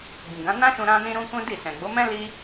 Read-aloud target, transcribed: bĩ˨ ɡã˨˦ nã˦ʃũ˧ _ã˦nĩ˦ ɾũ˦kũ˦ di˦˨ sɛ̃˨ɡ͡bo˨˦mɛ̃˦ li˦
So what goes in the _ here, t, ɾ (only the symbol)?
ɾ